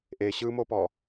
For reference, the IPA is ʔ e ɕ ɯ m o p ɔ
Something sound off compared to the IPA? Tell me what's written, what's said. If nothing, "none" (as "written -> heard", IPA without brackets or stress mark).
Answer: none